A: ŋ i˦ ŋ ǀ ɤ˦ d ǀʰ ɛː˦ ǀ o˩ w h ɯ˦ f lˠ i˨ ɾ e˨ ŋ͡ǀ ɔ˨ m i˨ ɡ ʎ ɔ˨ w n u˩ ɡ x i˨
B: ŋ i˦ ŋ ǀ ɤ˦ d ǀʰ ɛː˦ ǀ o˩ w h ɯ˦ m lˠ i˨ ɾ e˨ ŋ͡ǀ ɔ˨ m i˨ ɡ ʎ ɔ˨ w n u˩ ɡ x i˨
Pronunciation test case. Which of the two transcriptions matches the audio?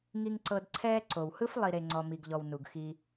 A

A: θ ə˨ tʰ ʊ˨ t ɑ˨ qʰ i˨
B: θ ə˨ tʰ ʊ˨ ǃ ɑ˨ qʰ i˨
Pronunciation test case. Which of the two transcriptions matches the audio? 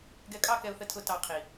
A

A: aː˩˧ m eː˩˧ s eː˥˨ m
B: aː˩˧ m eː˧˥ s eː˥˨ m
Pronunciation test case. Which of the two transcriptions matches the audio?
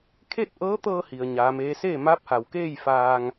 B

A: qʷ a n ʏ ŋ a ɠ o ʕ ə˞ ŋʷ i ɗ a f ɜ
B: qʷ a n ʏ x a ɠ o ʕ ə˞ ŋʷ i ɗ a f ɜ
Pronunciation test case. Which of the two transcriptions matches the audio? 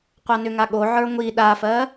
A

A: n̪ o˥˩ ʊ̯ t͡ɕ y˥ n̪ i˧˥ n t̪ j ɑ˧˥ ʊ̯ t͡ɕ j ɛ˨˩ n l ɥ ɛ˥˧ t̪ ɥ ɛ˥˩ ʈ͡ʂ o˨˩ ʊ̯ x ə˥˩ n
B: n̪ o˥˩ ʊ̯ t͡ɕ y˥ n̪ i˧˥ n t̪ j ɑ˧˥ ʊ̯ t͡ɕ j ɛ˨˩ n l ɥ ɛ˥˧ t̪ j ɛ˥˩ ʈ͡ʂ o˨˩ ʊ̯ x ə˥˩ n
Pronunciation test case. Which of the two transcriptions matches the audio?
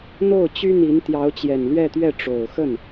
A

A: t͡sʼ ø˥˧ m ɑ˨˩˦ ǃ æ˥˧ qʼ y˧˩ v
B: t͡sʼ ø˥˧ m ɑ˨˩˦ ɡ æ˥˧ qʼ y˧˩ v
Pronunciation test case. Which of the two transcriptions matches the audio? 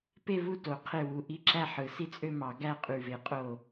B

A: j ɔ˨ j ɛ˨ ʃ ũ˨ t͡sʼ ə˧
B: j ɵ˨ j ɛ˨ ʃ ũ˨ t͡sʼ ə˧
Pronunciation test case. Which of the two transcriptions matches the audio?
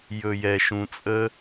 B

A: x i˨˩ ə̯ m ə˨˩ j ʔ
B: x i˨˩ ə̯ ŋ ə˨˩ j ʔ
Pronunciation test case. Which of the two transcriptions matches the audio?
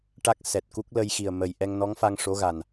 A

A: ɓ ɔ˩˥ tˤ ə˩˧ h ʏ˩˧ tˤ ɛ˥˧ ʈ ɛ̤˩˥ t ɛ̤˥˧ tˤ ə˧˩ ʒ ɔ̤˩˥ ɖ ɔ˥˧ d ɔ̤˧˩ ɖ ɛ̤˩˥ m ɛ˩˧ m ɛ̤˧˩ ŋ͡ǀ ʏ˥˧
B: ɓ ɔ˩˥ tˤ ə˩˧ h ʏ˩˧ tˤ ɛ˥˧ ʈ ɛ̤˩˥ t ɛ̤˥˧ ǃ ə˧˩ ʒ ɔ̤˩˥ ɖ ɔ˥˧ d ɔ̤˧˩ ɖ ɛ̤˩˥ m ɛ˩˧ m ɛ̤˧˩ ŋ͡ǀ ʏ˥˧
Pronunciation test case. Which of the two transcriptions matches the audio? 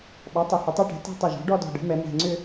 A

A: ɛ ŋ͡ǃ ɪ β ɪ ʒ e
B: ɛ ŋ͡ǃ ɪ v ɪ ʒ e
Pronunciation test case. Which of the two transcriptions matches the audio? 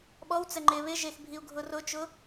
A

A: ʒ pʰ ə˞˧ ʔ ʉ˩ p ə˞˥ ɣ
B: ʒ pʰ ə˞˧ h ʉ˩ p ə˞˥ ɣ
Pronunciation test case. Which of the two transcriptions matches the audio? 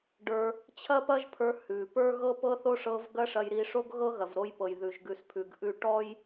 B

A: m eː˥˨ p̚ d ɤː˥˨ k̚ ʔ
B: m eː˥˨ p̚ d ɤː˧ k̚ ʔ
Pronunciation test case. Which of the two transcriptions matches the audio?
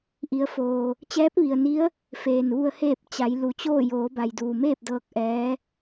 B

